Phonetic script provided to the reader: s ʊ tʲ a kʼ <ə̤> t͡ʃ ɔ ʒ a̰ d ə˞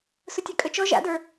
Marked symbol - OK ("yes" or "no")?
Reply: no